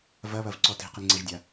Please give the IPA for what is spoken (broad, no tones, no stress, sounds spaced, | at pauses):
v ɐ β ɐ v ǀ ɔ t i̤ q i ŋ͡ǀ ɛ ʒ dʲ a